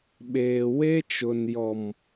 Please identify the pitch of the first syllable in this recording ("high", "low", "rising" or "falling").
low